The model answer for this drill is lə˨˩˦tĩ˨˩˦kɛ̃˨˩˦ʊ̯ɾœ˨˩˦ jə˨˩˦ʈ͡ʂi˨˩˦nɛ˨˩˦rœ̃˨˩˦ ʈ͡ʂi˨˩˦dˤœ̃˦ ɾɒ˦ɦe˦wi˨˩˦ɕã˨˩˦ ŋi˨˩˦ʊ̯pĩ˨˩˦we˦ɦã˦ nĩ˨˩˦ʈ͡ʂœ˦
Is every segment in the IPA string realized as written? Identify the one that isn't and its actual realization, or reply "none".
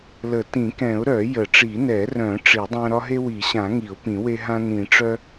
none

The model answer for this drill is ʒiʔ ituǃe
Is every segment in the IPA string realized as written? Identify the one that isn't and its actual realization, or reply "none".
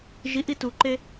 none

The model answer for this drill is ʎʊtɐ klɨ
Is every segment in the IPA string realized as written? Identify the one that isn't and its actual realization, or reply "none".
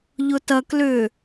ɨ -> ʏ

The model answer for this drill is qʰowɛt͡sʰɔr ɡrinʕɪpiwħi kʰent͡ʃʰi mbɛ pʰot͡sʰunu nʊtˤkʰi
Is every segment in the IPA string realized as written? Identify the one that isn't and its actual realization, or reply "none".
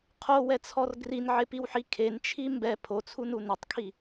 none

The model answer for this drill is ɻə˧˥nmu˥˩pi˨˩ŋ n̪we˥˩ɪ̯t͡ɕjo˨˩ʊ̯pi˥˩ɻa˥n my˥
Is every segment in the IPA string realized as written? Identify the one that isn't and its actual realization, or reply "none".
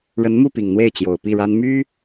none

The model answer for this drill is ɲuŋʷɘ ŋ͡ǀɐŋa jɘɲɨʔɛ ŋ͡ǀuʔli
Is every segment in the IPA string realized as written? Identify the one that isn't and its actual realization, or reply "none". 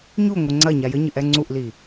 ŋ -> ɲ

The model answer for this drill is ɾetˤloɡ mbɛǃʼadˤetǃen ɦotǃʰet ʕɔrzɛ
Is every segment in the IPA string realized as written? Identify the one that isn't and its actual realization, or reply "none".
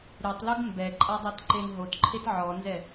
r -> n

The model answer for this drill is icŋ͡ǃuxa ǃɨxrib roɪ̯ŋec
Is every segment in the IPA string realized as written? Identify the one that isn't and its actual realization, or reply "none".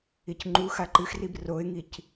e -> i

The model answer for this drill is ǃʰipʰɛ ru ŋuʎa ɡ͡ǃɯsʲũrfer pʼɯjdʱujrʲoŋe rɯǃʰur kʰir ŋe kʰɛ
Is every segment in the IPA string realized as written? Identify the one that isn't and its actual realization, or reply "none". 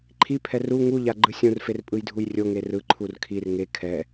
none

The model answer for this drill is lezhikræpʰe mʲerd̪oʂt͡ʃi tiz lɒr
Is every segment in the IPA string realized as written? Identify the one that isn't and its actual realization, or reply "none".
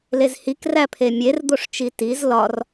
none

